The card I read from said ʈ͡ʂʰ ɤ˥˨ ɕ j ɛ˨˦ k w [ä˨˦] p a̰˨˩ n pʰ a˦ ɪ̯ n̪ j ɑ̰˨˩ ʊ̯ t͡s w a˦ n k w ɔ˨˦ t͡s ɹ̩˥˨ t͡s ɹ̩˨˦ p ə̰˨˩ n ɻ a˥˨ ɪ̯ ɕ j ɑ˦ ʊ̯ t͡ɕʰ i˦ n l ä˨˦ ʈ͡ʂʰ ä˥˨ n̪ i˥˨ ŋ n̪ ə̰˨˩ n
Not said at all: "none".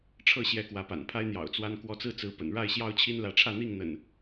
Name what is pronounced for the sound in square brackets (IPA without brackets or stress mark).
ä˨˦